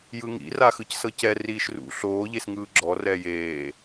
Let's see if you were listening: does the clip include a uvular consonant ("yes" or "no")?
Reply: no